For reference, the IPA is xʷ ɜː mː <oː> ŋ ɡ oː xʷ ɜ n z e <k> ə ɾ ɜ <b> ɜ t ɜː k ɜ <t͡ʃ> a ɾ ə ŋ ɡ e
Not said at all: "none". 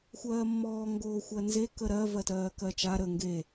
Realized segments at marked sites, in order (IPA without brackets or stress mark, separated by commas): ɔː, k, v, t͡ʃ